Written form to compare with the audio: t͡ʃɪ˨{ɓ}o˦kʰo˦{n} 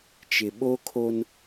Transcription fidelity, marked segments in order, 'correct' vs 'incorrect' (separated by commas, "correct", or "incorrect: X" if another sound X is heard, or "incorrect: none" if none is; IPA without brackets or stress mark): correct, correct